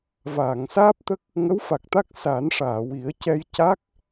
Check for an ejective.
absent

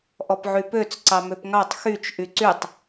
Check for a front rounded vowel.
present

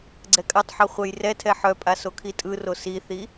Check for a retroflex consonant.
absent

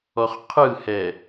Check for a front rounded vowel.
absent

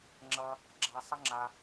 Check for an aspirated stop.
absent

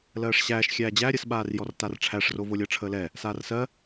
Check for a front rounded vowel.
absent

